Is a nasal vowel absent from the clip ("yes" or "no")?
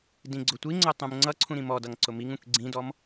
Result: no